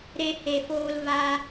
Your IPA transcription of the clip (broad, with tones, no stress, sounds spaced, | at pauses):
ɾ e˧ h e˨ f oː˧ l v a˧